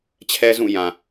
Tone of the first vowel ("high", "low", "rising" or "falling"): high